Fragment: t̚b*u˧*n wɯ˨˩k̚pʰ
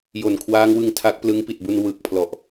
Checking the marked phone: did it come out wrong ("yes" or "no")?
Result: no